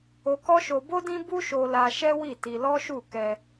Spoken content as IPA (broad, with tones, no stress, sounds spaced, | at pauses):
o˧ k ɔ˦ ʃ o˧ b o˦ d ĩ˦ b u˦ ʃ o˧ l a˧ ʃ ɛ˦ w i˦˨ t i˧ l ɔ˦ ʃ u˦˨ k ɛ˧